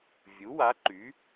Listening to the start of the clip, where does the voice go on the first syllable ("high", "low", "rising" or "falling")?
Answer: rising